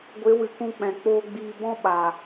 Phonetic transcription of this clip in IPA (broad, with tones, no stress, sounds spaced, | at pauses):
ɡʷ e˨˦ w ɨ˨ k ũ˧ k͡p ɛ̃˨ k͡p oː˧ ɡ͡b iː˧ b ɔ̃˦ ɓ a˨